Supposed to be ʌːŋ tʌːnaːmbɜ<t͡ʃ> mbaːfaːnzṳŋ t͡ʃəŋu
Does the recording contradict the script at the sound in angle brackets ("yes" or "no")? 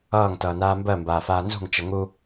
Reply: yes